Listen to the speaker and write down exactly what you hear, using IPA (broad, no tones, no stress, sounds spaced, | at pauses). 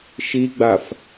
ʃ i ɡ͡b a f